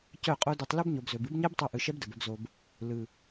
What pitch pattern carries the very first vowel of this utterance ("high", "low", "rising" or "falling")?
falling